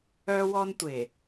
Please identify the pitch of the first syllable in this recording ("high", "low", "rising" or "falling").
high